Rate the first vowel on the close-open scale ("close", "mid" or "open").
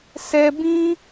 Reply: mid